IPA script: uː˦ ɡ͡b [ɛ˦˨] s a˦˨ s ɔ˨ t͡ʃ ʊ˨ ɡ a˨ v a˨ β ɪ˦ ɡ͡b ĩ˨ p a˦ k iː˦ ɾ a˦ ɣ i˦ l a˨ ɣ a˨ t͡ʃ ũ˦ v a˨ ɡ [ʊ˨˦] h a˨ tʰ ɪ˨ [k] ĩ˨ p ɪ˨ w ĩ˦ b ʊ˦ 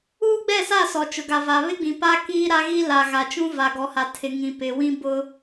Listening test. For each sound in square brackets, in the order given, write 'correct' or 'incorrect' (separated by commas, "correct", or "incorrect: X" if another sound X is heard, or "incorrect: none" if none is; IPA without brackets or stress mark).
correct, incorrect: ɔ˨˦, incorrect: ŋ